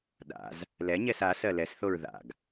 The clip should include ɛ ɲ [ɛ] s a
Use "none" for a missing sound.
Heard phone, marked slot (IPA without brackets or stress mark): ɛ